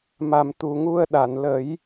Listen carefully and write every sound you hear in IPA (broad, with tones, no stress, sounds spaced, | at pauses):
m a˨˩ m t̪ u˨˩ ŋ u˧ ə̯ ɗ a˨˩˨ n l ə˨˩˦ j